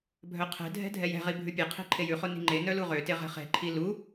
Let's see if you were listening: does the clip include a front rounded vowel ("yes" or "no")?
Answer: yes